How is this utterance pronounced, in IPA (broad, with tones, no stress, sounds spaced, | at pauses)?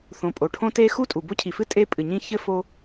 θ õ˩ pʼ o˩ ʈʰ õ˦ t e˦ x u˥ tʼ u˩ b o˥ cʰ i˩ f ɨ˥ tʼ e˦ pʼ ɨ˩ ɲ ĩ˦ ç ɘ˥ f o˦